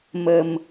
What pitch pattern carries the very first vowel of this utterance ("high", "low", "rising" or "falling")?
low